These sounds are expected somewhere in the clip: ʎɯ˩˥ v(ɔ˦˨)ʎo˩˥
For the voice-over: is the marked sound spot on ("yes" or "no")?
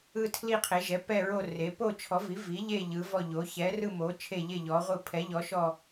yes